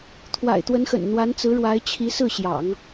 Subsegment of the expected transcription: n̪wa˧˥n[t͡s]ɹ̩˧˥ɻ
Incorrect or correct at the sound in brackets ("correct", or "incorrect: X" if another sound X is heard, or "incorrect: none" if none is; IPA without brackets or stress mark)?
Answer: correct